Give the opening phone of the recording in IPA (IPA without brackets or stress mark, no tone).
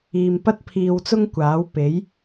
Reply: iː